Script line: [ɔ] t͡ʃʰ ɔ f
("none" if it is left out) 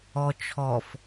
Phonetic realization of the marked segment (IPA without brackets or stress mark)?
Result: ɔ